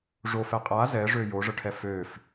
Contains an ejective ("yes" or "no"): yes